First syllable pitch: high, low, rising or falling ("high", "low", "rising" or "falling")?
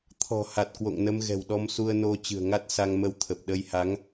low